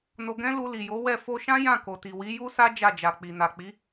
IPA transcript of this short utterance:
n o˧ ɡ ɛ̃˦ l u˧ l i˨ j o˨˦ w ɛ˦˨ f o˧ ʃ ã˦ j ã˦˨ k o˨ t i˨ w i˨˦ j u˦ s a˦ d͡ʒ a˦˨ d͡ʒ a˨ k͡p i˨ n a˨ k͡p i˨˦

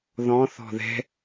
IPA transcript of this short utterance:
ð ɔ̃ θ ɔ̤ ð ɛ̤

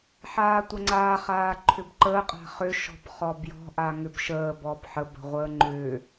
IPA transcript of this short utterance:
ħ aː tʷ ə ŋ͡ǀ aː χ aː ǃʰ ʏ b ǃ əː qʼ a̤ χ ʏ ʃ ɔ̤ b χ ɔ b j ɔ̤ ʔ a ŋ ʏ b ʃ əː b ɔ b ħ ə b ə̤ ʁʷ əː ŋ͡ǃ ʏː

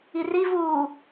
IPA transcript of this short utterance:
i r i v uː

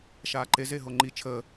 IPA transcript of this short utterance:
ʃ aː ǃ e z e ɦ o ŋ͡ǃ i t͡ʃʰ əː

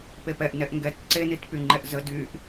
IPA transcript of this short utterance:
p e p ɛ ʔ n ɛ ʔ ŋ ɡ ɛ t ǀ e n i t p y ŋ͡ǃ ɛ ʔ z ə d y ʔ

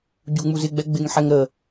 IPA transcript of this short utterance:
ɟ u ŋ͡m u z ɪ ɡ͡b ɛ ɡ͡b ɪ ŋ ħ ɛ ŋ ɾ ə

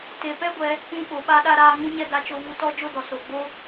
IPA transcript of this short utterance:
t e˨ p ɛ˦ ɡʷ ɛ˧ | ũ˧ ɓ o˨ ɓ a˧ ɗ a˧ ɾ aː˧ ŋ ũ˦ ɲ ɛ˦ d a˧ t͡ʃ o˧ v u˧ t ɔ˦ d͡ʒ o˦ d ɔ˨ s o˨ ɡ͡b o˦

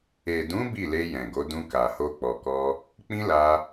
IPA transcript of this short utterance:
e˨ d ũ˨˦ b i˦˨ l e˧ j ɛ̃˨ ɡ o˨˦ d ũ˧ k a˨ h o˧ k͡p ɔ˨ k ɔ˧ | k͡p ĩ˦ l a˧

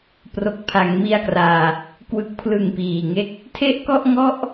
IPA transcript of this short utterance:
p r o˨˩ k̚ pʰ a˩˦ ŋ m i˧ a̯ k r aː˨˩ | k w ɯ˨˩ k̚ pʰ l ɯ˨˩ ŋ p iː˨˩ ŋ e˦˥ k̚ | tʰ e˥˩ ʔ k ɔ˥˩ ʔ ŋ ɔ˥˩ ʔ

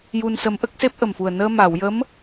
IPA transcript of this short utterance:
j u˧ n s ə˧˥ m ʔ ə˦˥ k̚ s e˦˥ p̚ ʔ ə˨˩ m f u˨˩ ə̯ n əː˧ m a˨˩˨ w j ə˧˥ m

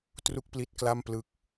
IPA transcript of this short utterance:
t r u˥˩ k̚ p l i˦˥ t̚ k l a˥˩ m p l ɯ˥˩ k̚

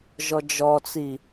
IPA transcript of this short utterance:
ʒ ɔ d͡ʒ ɔ t͡s i

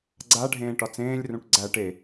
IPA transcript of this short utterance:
ɡ͡ǀ a ɖʱ ẽː ʈ ɒ t͡s ẽː lʲ r ũ ʈ ɡ͡ǀ æ ʈ e

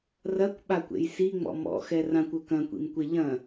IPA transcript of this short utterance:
r ɐ kʷ ɓ a kʷ ḛ j s i ŋ͡m ɔ̰ m ɔ̰ x ɛ r ã kʷ ɵ k ɐ̃ kʷ ḭ m kʷ e ʎ ɐ̃

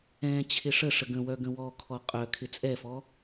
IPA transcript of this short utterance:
ɛ̃ t͡ɕʰ ɪ ʂ ə ʂ ə ɡ ə̃ w œ ɡ ə̃ w ɔ kʰ ɔ qʼ œ kʰ ɪ t͡sʼ ɛ f ɔ

